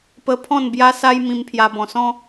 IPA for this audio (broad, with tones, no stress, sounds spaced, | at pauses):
p ə˧ pʰ ɔ̃˥˧ n b j a˦ s a˦ j m ĩ˧ m pʰ j a˧ b ɔ̃˧ s ɔ̃˦